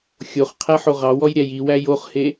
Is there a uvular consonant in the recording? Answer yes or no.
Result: yes